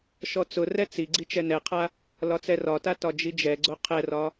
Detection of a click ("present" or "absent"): present